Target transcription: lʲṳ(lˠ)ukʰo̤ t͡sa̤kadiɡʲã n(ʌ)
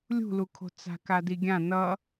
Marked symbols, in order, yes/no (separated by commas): no, yes